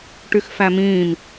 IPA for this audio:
ʈ y x f æ m ĩː m

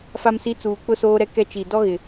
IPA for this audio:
f a˨ m s i˨˦ t͡s uː˨ k͡p ʊ˦ s oː˦ ɾ ɛ˦ k ɛ˦ t͡ʃ i˨ d ɔ˦ ɣ ɪ˨

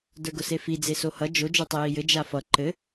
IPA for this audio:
d ə˞ ɡ ʊ s e f i d͡z e s o h ʌ d͡ʒ o d͡ʒ o tˤ i j i j ɘ d͡ʒ a f ʌ ǃ ɘ

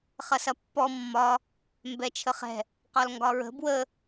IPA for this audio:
χ ɐ s ɐ pː ɔ mː ɒ | m b ɛ t͡ʃʰ ə χ ɛ̤ | q ɒ l ŋ ɡ ɒ ɹ ə̤ b w ə

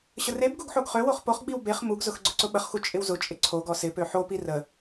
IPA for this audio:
ɕ ə r e b ɡ u ɡ ħ o ɡ χ ø w o χ p o χ ɡ͡b i w b e χ m u ɡ z ʊ x ɡ͡ǀ ʊ ǀ ʊ ɓ ə χ x u t͡ʃʼ ɪ w z ʊ t͡ʃʼ ɪ ǀʰ o ɡ ɔ s ɪ p ø ħ o p i r ə

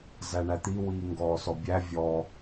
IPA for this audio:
z æ ɳ æ t̪ i w iː ŋ ɡ ɔː s ɔ bʲ æ vʲ ɔ

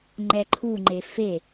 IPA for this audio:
ŋ͡ǃ ɛ ǃʰ u ŋ͡ǃ e f e

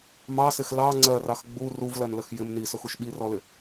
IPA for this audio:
m ɑ s ɪ x l ɑ ŋ͡ǀ ɜ r ɑ x ɡ͡b u r u v l ɜ n l ə x j ɪ m n i s ʊ x u ʃ ɓ i r ɔ l ɪ

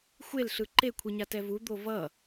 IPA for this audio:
xʷ e l ɬ ɯ ǃ e kʷʰ i ɲ a t ɛ v u d̪ o v ʌ

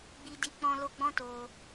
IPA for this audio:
ɡ͡b i˧ d i˧ k͡p ɔ̃˧ l o˧ ɡ͡b ɔ̃˦ t o˧

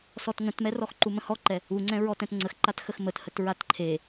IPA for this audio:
s ɔ t ŋ ə̃ t m ɛ r ɔ x ǃ u m ə̃ h ɔ ǃ ɛ | u ŋ͡ǀ ɛ̃ ɹ ɔ t ɛ̃ t ŋ͡ǀ ə x ǃ a t x ə x m ə t h ə t ɹ a t ǃʰ e

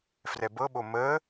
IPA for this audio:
f r ɛ b ɤ ɓ o m ə

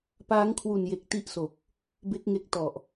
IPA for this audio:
p aː˦˥ ŋ kʰ w u˨˩ n j e˨˩ k̚ t i˥˩ ʔ s o˨˩ k̚ | b e˦˥ k̚ ŋ e˦˥ k̚ t ɔ˨˩ ʔ

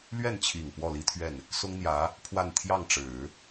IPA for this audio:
l ɥ ɛ˥˩ n t͡ɕʰ i˨˩ ŋ p w ɔ˥˩ l i˥ t̪ʰ ɥ ɛ˥˩ n | s ʊ˥ ŋ n̪ j ä˧˥ | pʰ w a˥˧ n t̪ʰ j ɑ˥˩ ŋ ʈ͡ʂ ɻ̩˨˩˦

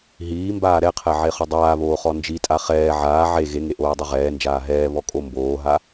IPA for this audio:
ɦ iː m b aː ɾ ɛ qʰ ɛ ʕ e χ o dˤ aː β oː χ ɔ n d͡ʒ i tʼ a χ ɛː ʕ aː ʕ e ɣ e ŋ e ʔ oː dˤ i ʁ ɛː n d͡ʒ aː ɦ ɛː β ɔ kʼ o m b oː ɦ a

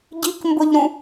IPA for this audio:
ɟ i k m b ʊ ʎ ɾ ũ

